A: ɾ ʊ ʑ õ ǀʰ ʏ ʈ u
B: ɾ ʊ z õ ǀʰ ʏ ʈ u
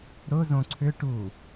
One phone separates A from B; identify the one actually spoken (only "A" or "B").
B